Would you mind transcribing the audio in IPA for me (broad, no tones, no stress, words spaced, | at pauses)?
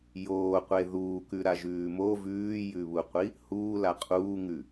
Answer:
joːqʷe ðuːkʉɾaʒʉː mo vʉːjʉβuqʷi | huːla qʼuːŋʉ